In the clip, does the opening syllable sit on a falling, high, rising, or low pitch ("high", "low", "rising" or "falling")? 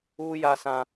high